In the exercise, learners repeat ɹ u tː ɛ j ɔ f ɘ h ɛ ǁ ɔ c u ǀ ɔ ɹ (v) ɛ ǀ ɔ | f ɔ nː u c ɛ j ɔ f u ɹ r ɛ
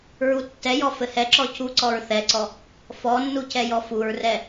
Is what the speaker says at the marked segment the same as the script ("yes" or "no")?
no